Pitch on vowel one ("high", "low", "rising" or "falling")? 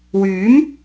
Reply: rising